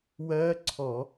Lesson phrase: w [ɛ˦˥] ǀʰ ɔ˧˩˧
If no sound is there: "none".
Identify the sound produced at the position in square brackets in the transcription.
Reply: ɜ˦˥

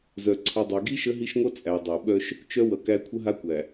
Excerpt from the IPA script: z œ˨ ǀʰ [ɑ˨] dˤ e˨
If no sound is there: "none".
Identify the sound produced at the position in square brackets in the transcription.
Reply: ʌ˨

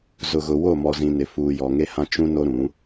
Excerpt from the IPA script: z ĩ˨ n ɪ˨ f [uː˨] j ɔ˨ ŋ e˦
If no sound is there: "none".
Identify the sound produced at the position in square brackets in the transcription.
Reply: uː˨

